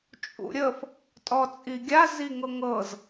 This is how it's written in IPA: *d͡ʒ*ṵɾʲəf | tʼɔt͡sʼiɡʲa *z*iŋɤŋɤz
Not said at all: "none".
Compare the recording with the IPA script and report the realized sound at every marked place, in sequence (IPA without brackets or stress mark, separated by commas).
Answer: t͡ʃʼ, z